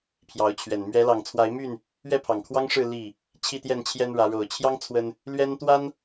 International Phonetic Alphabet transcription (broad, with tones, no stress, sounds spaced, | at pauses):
pʰ j ɑ˨˦ ʊ̯ t͡ɕʰ ɥ ɛ˨˩ n m ɥ ɛ˨˦ l ɑ˨˩ ŋ t͡sʰ w a˨˦ ɪ̯ m y˥˨ n | ɥ ɛ˥˨ pʰ ɑ˨˩ ŋ kʰ w ɑ˦ ŋ ʂ ɻ̩˥˨ l i˥˨ | t͡ɕʰ i˥˨ t̪ j ɛ˥˨ n t͡ɕʰ j ɛ˦ n ɻ ä˨˦ ɻ o˨˩ ʊ̯ t͡ɕʰ j ɑ˦ ŋ t͡sʰ w ə˦ n | l ɥ ɛ˦ n t̪ w a˦ n